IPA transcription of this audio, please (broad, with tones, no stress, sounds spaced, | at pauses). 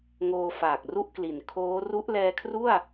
ŋ oː˧ f aː˨˩ k̚ r u˥˩ ʔ k l i˨˩ n kʰ oː˦˥ r u˦˥ ʔ l ɛː˧ kʰ r u˥˩ a̯